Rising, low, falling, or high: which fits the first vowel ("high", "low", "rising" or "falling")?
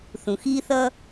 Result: low